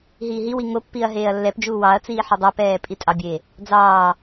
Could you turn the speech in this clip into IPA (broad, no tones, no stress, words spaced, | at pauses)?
ɦiːɦiwi ŋopːiɐ̯ ɦeːɐ̯lːɛpd͡ʒuː wɑɐ̯t͡siː ħodˤɑpɛː pʼitʼɑbʲeː | d͡zɑː